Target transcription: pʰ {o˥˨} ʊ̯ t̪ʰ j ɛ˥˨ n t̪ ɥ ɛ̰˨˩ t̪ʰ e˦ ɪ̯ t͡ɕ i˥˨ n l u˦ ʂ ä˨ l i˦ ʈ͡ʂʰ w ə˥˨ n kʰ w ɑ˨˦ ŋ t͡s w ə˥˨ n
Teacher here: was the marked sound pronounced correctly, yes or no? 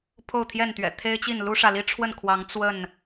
yes